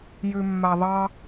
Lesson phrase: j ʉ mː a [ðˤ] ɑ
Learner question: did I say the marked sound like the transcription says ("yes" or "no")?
yes